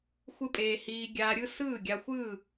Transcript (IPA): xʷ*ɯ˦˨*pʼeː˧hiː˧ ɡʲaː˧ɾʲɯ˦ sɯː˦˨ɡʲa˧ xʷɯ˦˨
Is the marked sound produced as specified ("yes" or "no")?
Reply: no